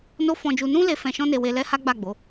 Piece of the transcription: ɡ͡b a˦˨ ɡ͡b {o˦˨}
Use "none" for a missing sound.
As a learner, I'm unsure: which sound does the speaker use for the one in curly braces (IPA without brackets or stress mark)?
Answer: o˨˦